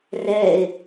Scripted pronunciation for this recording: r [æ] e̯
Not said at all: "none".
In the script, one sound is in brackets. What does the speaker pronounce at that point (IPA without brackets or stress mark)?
ɛ